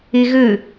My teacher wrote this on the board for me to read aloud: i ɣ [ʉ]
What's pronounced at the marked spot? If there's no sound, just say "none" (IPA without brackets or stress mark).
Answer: ʉ